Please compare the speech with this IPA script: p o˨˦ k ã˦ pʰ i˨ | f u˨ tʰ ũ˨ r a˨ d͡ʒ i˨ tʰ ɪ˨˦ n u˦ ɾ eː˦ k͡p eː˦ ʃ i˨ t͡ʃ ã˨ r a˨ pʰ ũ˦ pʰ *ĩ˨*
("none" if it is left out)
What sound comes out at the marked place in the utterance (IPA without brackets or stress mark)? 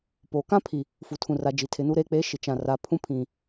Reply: ĩ˨